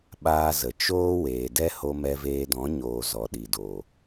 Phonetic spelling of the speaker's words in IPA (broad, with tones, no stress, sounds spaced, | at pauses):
ɓ aː˦ z ə˨ t͡ʃ oː˦ w eː˨ d ɛ˦ h o˧ m ɛ˧ v eː˧ d ɔ̃˨˦ ɲ oː˨ z ɔ˨ ɗ i˨ d oː˨